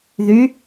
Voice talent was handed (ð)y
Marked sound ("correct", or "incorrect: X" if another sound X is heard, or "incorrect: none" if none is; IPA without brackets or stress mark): correct